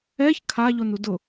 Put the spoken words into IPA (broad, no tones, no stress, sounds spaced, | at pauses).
ɛ ç kʰ a ʎ o n u d ʊ